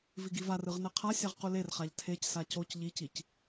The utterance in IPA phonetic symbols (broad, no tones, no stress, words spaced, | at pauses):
viɡivarɯʁ nɛqʰasʲaʁ qulerχaʎ tʰecsa coc ʎicic